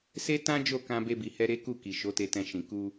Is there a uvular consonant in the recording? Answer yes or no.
no